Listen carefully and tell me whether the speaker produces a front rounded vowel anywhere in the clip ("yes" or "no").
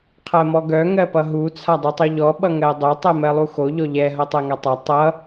yes